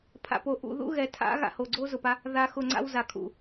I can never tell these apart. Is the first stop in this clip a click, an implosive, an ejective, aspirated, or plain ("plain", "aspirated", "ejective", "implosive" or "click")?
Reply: aspirated